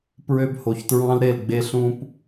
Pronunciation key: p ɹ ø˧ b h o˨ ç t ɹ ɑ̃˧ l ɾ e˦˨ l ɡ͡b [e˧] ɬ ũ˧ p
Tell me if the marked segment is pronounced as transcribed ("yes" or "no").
yes